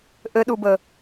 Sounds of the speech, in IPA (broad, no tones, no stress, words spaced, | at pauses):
ʔɘɗubə